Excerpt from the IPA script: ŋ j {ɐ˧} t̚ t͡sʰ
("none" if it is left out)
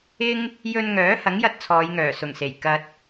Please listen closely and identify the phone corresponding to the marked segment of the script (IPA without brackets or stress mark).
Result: ɐ˧